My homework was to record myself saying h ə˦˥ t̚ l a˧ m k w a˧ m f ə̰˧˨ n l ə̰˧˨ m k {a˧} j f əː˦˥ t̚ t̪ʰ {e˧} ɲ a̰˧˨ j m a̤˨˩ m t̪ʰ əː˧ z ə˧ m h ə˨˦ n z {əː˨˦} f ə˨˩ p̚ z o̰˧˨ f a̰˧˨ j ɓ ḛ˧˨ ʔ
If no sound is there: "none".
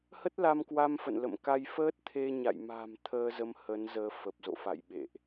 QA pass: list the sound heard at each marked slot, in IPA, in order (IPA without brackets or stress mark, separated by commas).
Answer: a˧, e˧, əː˨˦